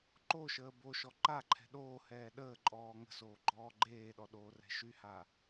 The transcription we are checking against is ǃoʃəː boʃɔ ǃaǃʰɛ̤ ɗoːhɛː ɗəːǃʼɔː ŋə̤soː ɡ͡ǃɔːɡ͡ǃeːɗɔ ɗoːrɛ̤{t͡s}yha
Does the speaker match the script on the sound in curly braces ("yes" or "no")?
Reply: no